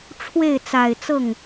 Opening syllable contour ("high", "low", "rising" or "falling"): falling